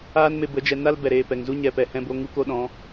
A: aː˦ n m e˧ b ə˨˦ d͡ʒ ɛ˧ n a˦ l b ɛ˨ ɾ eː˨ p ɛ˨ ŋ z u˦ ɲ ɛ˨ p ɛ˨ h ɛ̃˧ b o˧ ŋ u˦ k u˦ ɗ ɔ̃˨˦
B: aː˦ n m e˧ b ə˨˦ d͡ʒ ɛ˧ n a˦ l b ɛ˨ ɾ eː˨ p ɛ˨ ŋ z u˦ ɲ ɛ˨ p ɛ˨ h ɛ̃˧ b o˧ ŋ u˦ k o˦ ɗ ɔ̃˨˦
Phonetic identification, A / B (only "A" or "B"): B